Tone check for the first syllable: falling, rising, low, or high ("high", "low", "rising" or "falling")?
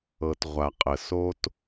low